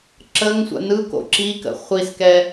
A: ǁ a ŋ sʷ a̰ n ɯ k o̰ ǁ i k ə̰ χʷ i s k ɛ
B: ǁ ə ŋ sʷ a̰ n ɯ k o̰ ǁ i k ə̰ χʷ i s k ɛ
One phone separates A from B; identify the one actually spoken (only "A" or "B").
B